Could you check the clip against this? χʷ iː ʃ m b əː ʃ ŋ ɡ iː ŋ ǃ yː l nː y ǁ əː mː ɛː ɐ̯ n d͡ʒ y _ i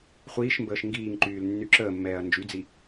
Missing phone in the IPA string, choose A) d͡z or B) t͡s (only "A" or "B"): A